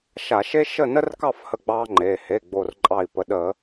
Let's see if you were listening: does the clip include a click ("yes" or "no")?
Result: yes